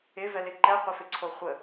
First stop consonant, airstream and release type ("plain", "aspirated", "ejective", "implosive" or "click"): click